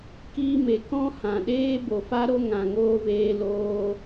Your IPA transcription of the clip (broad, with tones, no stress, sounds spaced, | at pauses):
k iː˧ m e˨ k ɔ̃˦ h ã˨ ɗ eː˦ b o˨ f a˧ ɾ o˧ ŋ ã˨ ŋ oː˧ v eː˧ l oː˧